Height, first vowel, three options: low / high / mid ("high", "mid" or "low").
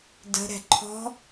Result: mid